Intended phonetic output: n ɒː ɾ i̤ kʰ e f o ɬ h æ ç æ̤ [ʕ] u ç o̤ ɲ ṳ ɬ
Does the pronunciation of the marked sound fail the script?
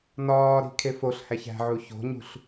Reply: no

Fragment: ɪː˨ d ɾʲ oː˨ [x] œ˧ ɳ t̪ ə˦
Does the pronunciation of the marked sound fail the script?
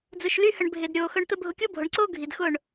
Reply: no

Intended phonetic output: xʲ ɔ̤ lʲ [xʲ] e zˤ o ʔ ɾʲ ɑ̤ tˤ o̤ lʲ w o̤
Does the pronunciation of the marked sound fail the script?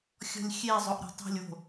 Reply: no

